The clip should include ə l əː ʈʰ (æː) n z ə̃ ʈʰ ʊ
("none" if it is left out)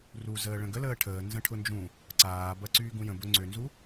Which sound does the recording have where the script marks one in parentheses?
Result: əː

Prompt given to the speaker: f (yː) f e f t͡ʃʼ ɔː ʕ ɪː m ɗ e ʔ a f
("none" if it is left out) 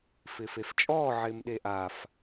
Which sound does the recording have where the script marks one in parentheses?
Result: ɪː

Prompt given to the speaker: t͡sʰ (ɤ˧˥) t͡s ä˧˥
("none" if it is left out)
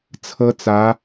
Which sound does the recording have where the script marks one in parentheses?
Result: ɤ˥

